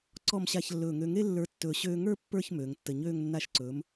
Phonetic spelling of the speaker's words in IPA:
ǀɔ˧˩mɕa˧˩ç lːɵː˧˩ŋø˧ŋe˥ lːə˞˧tːɵː˧˩ ɕøː˧ŋə˞˥˧ pːə˞˥˧ç møː˩˧ŋtːə˧˩ɲøː˥˧ŋ nːa˧˩ʃǀɵː˩˧m

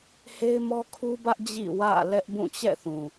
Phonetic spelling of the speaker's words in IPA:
he˦ɪ̯mɔ˦kʰu˦bä˦ʔ d͡ʑḭ˦˨wä̰˦˨lɛ˦ʔbũ˦˨ t͡ɕɛ̰˦˨θũ˨

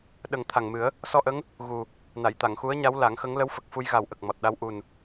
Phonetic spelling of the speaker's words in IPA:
ɗə˨˩ŋ t̪ʰa˨˩ŋmɨ˨˩˦ə̯ | sɔ˧ʔə˧˥ŋ | ɣu˨˩ | na˨˩˨jt̪a˨˩˨ŋxu˧˥ə̯ɲa˧˥w la˨˩˦ŋxə˧˥ŋ lə˧˥wfə˨˩k̚ fu˧jɣa˨˩wʔə˨˩k̚ mɔ˨˩t̚ɗa˧w ʔu˨˩n

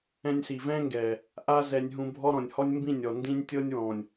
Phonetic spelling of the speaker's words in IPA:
ɛ̃˧nʲsi˨vɛ̃˦ŋɡɛː˨ | ʔa˦ zɛ˧nʲɦũ˧bʱɔ˦ ɾɔ̃˨nʲhɔ˦nʲ mbĩ˦˨nʲɔ˨ ndĩ˦nʲ tʲɤː˦nʲwɔ̃ː˨nʲ

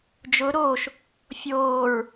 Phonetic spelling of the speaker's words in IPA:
d͡ʒʊ ɾoʃ | fʲoːɹ

